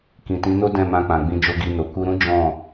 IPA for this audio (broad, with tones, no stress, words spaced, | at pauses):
kĩ˨tĩ˨˦no˦ dɛ̃˦˨mã˧k͡pã˨ɡ͡bĩ˧ d͡ʒo˧ɡi˧no˨ ku˧ɾũ˦ d͡ʒɔ̃˦˨